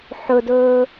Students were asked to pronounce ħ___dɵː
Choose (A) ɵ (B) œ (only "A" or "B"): A